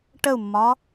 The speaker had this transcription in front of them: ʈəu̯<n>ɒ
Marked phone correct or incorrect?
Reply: incorrect